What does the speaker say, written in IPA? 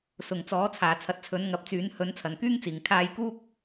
sʊ˨˩ŋ t͡sɔː˨˥t͡sʰaː˨˩ t͡sʰɐ˨˥t̚t͡sʰɵ˨˥nŋɐ˨˥p̚t͡syː˨˥n hɵ˨˥nt͡sʰɐ˨˩nkyː˥ŋt͡siː˨˩ŋ kʰaː˧jkuː˥k̚

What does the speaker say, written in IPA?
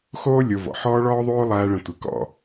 xoː˦ lʲo˧vɔ̰˨ ħɔː˦ɭɔː˦ðˤoː˦ lˠæː˦ɭə̃˧tʷɪ˨˦ kɔ̰˨

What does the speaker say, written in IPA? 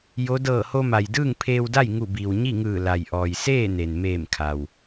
jo˧˥ dɤː˧˩ho˧ma˩j dɯː˥˨ŋpʰeː˧wda˥˨j ŋu˧˩biː˩w ɲi˥˨ŋɯː˧˩ la˩jʔɔː˩jseː˥˨ne˩n meː˧˩mkʰa˩w

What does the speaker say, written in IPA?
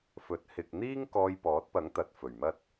fɵ˨˥t̚ hɪ˨k̚ n̪iː˥ŋ kɔː˧jpɔː˨˥t̚pɐ˨˥ŋ t̪ɐ˨t̚ fɵ˨˩ɥmɐ˥t̚

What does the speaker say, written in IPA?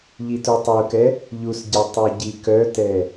ʎitutˤukɛ | ʎusɟɛ tˤuɟikœtɛ

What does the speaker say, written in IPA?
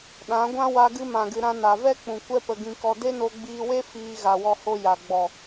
ɗã˨˦ɡʷã˦ wa˧ɡɨ˧mã˨ɡɨ˨ ɾã˧na˨vɛ˦k͡pũ˨ kʷɛ˧pə˨ɡĩ˨kɔ˨ de˦no˧ɡ͡biː˧we˦ fiː˧ɣa˨wɔ˧ho˧ ja˨ ɡ͡bɔ˨

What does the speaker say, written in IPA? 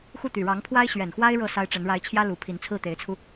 xu˥˩t̪y˨˩ ɻɑ˧˥ŋpʰwa˥ɪ̯ ɕɥɛ˨˩nxwa˥ɪ̯ ɻɤ˥˩ sa˥ɪ̯ʈ͡ʂə˧˥n ɻa˧˥ɪ̯t͡ɕʰjä˥ lu˧˥ pʰi˧˥nt͡sʰɹ̩˥˩t̪e˧˥ɪ̯t͡sʰu˧

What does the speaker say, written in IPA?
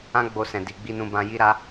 ã˦ɡ͡bo˧sɛ̃˨di˨ ɡ͡bi˧nũ˧bã˧ ji˦ɾa˦

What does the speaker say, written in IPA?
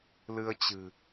lɨ˧ə̯t͡ɕɨ̤˨˩

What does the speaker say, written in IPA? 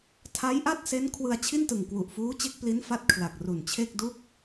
tʰa˦˥jʔa˥˩t̚se˦˥n kʰwɯ˧a̯t͡ɕʰi˥˩ntɯ˨˩ŋ kwu˨˩ʔfuː˦˥t͡ɕe˦˥k̚ pli˦˥nfa˦˥t̚ kʰla˨˩k̚ ru˨˩nt͡ɕʰe˥˩k̚ du˥˩k̚

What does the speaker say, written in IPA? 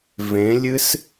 vẽlʲɨs

